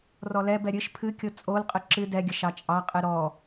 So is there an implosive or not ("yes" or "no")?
no